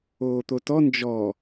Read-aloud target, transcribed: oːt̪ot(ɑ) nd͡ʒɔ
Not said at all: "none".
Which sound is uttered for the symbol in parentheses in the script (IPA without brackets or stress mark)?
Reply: ɔ